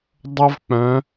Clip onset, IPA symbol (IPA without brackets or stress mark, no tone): dˤ